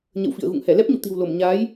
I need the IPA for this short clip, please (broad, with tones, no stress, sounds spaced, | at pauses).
ɲ ə̰˧˨ w f ḭ˧˨ ə̯ ɣ ṵ˧˨ ŋ h ɛ˧˩ l ɛ˦˥ p̚ ɲ ṵ˧˨ t̪ i̤˨˩ w l o˧˩ m ɲ aː˨˦ j